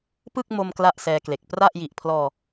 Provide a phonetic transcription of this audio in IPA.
pɯ˥˩k̚ mo˧m kla˥˩ʔsɛː˧kle˨˩k̚ pra˥˩ʔ ji˨˩ʔpʰlɔː˧

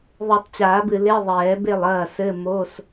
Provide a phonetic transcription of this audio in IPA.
ðˤɨ˨˩˦tˤt͡ɕaː˨˩˦bɨ˨ le˧˥˧ðˤɛː˨˩˦be˥˩lˠ ɐː˥˩sɘ˧˥˧mo˧˥˧s

